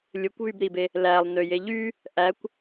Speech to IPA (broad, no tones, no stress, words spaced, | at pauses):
lʲɯkʷβybɾibe | lælˠnøje ʎy | ʔækʷ